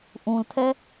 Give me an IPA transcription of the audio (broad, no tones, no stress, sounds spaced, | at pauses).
ʔ ũ l tʰ ɛ